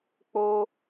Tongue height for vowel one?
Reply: mid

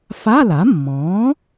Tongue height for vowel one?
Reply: low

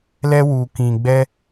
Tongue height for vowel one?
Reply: mid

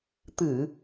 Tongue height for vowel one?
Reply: high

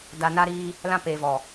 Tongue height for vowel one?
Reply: low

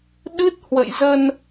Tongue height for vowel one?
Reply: high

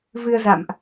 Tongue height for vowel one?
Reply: high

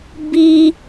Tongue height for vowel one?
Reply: high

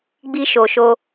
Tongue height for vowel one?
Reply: high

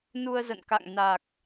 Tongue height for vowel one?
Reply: high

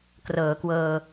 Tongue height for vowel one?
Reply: mid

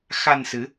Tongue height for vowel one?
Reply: low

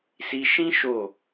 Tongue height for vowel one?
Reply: high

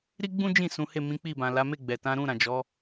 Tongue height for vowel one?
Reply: high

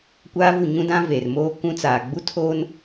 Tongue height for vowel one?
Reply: low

